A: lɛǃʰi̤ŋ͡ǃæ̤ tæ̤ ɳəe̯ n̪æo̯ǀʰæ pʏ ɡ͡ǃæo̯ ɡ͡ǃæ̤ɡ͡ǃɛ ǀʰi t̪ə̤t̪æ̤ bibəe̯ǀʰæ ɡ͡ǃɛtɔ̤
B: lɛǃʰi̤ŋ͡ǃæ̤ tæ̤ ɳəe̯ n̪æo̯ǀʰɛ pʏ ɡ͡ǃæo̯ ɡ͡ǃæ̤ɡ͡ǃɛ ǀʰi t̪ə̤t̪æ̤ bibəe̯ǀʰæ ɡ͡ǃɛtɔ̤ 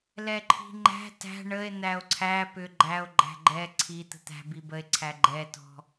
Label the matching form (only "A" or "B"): A